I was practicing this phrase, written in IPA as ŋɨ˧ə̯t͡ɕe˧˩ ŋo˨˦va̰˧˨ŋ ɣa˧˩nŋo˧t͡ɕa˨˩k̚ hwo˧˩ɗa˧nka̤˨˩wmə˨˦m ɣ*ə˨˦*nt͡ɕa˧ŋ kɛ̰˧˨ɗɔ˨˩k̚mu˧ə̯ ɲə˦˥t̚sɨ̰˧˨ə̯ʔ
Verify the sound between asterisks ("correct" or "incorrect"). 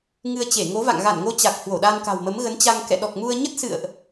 correct